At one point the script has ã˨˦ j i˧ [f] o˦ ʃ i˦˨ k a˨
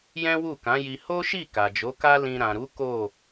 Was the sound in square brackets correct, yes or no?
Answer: no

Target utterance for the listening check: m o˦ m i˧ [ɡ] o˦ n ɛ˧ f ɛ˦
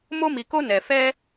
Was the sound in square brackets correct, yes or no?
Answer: no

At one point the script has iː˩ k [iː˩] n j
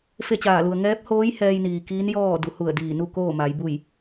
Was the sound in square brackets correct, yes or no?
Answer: no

